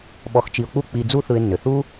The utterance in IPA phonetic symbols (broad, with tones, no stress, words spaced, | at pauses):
ɓɔ˧xt͡ʃi˧ʊ̯k͡pu˥ k͡pi˧ d͡zu˥θɯ˧ɪ̯nːʏ˩θu˥